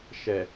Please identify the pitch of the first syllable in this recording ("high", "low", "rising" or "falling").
low